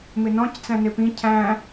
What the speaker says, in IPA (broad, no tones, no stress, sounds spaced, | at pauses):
m ɪ n ɔ̃ c t͡s æ̃ n ɪ p ĩ cʰ æ̃